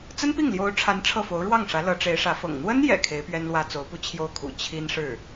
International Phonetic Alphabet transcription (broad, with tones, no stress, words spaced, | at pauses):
t͡sə˥npi˥˩ŋljo˧˥ʊ̯ʈ͡ʂʰa˧˥n ʈ͡ʂʰɤ˥˩fo˧˥ʊ̯ ɻwɑ˥˩ŋʂä˧˥ lɤ˧˥ʈ͡ʂe˧˥ɪ̯ʂä˧˥fɤ̰˨˩ŋ n̪wə˥njɛ̰˨˩ kʰe˧˥ɪ̯pɥɛ˥nlwä˥ t͡so˧˥ʊ̯pu˥˧ t͡ɕʰjo˥˩ʊ̯kʰṵ˨˩ t͡ɕʰi˥nʂɻ̩˥˩